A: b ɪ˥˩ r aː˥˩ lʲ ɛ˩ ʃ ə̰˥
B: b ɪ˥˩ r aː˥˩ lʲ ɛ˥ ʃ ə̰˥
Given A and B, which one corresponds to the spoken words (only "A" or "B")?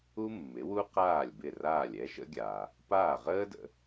B